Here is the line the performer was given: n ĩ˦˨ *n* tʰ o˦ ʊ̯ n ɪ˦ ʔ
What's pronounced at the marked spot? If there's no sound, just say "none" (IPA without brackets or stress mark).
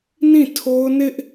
none